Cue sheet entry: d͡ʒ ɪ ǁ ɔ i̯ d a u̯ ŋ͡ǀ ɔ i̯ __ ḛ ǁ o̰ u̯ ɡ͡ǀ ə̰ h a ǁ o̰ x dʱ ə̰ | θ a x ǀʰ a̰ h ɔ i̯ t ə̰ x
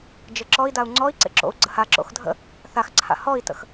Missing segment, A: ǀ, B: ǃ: A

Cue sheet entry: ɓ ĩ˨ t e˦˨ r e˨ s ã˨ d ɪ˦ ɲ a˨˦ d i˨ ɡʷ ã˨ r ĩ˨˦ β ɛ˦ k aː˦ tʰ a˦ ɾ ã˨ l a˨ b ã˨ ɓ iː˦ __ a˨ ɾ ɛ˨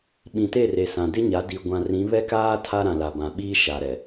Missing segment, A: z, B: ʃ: B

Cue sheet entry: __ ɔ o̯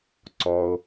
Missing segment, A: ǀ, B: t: A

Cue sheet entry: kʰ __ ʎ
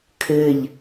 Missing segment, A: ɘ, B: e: A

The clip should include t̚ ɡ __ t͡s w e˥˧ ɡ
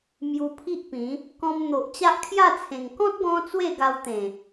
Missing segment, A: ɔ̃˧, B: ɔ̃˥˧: A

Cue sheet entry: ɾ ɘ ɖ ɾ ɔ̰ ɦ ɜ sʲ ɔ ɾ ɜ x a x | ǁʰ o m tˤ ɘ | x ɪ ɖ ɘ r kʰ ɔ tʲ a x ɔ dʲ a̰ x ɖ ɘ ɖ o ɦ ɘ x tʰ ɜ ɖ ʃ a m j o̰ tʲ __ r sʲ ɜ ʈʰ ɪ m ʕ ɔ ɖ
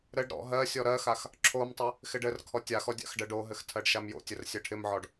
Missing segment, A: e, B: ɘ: B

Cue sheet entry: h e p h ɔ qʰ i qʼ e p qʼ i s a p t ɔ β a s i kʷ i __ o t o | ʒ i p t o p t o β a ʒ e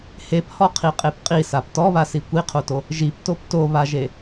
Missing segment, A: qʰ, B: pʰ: A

